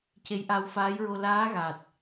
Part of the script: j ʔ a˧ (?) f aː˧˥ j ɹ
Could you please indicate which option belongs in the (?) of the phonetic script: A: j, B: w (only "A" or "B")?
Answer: B